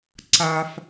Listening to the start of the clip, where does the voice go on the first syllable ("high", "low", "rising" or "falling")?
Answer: low